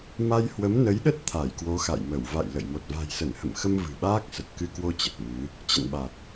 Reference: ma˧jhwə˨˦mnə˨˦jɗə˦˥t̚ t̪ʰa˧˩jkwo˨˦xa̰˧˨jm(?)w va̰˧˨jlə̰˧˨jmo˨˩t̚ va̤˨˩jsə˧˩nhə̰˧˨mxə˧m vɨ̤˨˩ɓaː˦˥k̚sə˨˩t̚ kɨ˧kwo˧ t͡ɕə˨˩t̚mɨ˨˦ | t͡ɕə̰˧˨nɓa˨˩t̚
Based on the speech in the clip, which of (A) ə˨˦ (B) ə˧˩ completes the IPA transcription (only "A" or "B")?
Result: B